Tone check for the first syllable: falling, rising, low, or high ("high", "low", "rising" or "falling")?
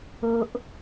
high